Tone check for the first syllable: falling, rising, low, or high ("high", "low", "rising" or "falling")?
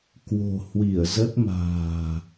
low